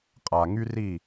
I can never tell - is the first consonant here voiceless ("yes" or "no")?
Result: yes